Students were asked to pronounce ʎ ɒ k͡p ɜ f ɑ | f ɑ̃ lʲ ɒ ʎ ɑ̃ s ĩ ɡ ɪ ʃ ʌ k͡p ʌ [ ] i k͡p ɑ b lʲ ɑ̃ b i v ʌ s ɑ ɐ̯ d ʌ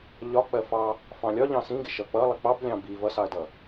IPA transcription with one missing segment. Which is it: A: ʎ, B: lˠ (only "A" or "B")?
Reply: B